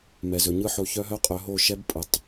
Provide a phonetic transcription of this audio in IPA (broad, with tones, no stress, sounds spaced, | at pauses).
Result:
m ɛ˨ z ɵ˨ ɲ ɯ˦ ħ o˨˦ ç œ˦ ɦ œ˦ qʼ œ˨˦ ɦ o˦˨ ʃ ɛ˦ b pʼ ɯ˨ tˤ